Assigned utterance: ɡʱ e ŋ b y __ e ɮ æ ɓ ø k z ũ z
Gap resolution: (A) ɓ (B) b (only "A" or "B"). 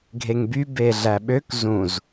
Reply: B